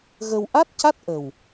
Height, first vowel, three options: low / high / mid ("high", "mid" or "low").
mid